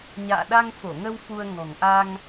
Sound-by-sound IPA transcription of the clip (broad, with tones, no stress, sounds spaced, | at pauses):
ɲ a̰ː˧˨ ɗ a˧ ŋ f o˧˩ ŋ ə˧ w f u˧ ə̯ ŋ ɔ̤˨˩ ŋ ʔ a˧ ŋ